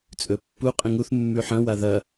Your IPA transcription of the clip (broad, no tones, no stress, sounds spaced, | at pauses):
t͡sʼ ɵ pː u qʼ ĩ ŋ u θ mː ʉ ħ ɐ̃ w a ð ɐ